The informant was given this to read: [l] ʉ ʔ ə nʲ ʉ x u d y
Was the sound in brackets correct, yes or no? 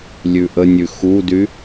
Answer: no